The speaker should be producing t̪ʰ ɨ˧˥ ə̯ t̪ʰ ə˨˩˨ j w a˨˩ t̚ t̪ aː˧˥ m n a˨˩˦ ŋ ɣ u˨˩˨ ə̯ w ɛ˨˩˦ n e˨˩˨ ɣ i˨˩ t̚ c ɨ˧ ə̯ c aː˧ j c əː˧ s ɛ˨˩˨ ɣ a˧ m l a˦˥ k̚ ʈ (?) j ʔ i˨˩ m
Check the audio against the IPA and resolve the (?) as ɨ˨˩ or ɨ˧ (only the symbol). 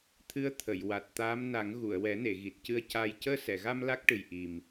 ɨ˨˩